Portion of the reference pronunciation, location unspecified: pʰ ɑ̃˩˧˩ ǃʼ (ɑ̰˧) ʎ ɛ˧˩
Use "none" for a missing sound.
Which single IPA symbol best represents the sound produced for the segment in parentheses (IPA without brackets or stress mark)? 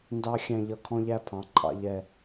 ɑ̰˧